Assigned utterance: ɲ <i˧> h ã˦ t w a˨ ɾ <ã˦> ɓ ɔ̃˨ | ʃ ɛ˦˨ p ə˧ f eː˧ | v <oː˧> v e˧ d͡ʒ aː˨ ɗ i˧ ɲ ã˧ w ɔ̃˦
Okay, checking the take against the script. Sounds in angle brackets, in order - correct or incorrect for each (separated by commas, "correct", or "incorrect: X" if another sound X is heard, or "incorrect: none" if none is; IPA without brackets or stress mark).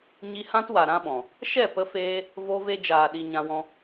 correct, correct, incorrect: o˧